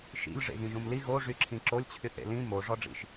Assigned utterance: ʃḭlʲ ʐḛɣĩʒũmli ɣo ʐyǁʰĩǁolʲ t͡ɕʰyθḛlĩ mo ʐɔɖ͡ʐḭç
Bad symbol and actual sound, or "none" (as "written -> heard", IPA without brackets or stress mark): ç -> ʃ